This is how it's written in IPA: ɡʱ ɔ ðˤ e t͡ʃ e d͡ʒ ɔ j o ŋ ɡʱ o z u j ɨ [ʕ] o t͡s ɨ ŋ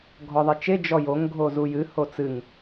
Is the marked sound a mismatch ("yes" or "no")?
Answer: yes